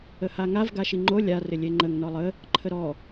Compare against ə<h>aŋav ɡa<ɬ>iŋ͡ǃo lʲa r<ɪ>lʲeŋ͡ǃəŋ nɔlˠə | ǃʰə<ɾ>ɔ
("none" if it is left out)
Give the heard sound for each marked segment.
h, ʃ, ɪ, ɾ

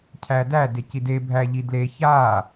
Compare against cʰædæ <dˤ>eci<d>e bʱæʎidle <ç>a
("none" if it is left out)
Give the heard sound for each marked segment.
d, d, ç

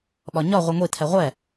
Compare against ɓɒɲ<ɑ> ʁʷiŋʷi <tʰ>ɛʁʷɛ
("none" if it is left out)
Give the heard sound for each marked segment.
ɒ, tʰ

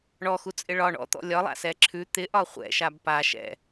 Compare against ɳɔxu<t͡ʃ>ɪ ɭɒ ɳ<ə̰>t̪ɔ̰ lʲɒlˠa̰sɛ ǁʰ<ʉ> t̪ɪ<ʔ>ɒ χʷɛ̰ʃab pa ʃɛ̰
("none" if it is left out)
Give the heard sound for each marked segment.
t͡sʼ, ɔ̰, ʉ, ʔ

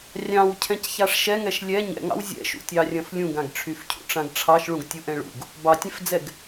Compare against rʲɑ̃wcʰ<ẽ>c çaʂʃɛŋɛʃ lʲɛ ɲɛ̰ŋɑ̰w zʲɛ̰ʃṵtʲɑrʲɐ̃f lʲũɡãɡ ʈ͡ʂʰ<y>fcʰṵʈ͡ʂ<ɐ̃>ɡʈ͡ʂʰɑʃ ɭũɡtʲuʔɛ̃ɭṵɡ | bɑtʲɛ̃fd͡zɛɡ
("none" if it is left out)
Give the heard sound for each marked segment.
ɛ̃, y, ã

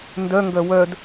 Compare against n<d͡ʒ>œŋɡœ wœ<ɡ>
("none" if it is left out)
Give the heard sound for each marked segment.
d, d

